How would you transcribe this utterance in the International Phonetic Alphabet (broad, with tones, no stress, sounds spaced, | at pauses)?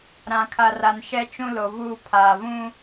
ɾ ã˨ kʰ a˨ r a˨ n ʃ ɛ˦ t͡ʃ ũ˦ l o˨ v uː˦ pʰ aː˨ v ũ˦